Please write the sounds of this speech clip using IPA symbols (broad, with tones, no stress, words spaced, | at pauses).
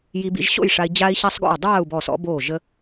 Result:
ji˧bḭ˧ʒɕo̰˥˨jʂa˧i̯ d͡ʑaː˧i̯ɕa˧sˤɡo̰˧˩u̯ dˤaː˥˨u̯bɔ˧˩ sɔ̰˧boː˧˩ʒ ə˧